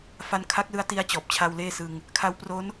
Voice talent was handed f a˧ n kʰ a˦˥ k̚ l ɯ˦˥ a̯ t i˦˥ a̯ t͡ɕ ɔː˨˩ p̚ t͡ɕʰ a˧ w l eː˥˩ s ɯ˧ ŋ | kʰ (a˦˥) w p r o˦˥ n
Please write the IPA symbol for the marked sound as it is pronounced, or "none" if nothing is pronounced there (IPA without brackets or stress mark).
a˦˥